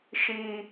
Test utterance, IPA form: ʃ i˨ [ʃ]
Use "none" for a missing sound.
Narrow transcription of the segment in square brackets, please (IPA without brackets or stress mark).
none